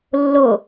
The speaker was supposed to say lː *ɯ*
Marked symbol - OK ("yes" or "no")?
no